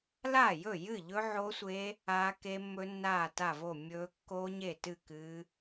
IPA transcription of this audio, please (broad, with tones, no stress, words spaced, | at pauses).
laː˥˩jɵ˥˩ jɨ˥˩ʎɵ˦˥ʕo˦˥sʷe˦˥ | aː˦˥ke˦˥mːɵ˦˥ nːaː˥˩ta˥˩vo˥˩ mʲɵː˦˥ kːoː˦˥ɲe˥˩ tɨ˥˩kɨː˦˥